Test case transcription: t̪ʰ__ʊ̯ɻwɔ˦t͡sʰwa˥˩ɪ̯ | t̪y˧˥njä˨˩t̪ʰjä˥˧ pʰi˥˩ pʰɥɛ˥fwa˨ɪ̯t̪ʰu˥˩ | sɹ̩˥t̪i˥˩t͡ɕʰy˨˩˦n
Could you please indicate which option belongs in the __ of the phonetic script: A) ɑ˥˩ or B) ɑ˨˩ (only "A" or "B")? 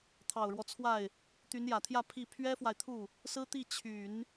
B